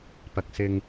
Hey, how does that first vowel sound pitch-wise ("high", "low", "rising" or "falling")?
low